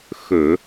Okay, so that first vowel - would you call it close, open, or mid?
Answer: mid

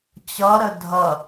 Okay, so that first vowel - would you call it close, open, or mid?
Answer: mid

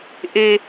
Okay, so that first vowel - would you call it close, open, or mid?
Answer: mid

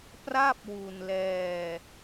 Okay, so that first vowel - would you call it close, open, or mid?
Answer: open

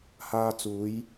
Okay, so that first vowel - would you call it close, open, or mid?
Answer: open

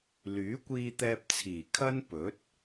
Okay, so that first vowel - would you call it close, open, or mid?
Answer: close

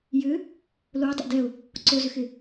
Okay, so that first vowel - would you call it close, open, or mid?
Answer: close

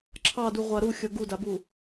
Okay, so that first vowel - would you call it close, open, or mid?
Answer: open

